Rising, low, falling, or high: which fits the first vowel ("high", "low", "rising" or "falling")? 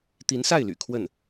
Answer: rising